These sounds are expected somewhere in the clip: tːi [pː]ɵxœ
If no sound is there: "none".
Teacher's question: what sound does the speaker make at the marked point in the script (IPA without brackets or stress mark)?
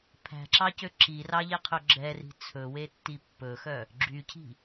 pː